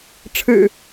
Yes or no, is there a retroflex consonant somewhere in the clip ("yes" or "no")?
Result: yes